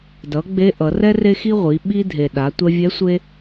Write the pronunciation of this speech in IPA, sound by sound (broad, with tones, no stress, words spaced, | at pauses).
dʌ˩˧ ɡ͡be˧˥ʔʌ˩˧rɛ˥ re˧xi˧ ʁʷi˩˧ ɓi˧dʱe˩ ɗa˩˧tʷɛ˧vʲɛ˧˥ sʷe˧